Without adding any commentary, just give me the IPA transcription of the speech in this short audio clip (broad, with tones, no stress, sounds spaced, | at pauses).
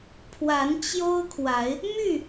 pʰ w a˨˦ n t͡ɕ j o˦ ʊ̯ kʰ w a˨˦ ɪ̯ | m y˥˨